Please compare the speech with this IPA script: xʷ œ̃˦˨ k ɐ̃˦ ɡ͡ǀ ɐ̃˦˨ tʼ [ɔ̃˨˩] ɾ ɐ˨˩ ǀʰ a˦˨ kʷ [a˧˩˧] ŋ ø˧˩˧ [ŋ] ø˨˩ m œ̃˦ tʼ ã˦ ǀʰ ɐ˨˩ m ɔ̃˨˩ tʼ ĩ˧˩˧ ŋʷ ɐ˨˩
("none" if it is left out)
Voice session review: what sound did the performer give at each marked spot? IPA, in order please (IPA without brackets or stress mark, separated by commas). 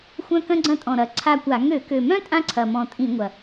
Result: ɔ̃˨˩, a˧˩˧, k